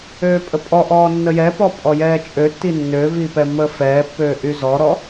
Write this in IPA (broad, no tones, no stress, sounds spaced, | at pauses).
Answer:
øː pʼ ə pʼ ɔ ʔ ɔː nː ə j ɛ p ɔ pʼ ɔ j ɛː t͡ʃʼ ø tː i nː ø v i p ɛ mː əː f ɛː pː øː ʔ y z ɔ ɾ ɔ